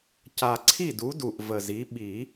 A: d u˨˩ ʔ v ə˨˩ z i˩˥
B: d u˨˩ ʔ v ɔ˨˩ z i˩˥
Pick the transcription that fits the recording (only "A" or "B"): A